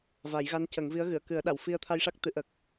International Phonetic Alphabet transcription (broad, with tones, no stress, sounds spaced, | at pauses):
v a˨˩˦ j ɣ a˧˥ n c ə˨˩˦ ŋ v i˧˥ ə̯ ɣ ɨ˨˩˨ ə̯ k ɨ˨˩˦ ə̯ ɗ a˨˩˨ w f i˧ ə̯ t̪ʰ a˧ j ʂ a˦˥ k̚ t̪ ɨ˨˩˦ ʔ ə˨˩ k̚